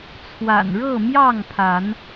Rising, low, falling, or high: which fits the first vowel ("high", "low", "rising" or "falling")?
low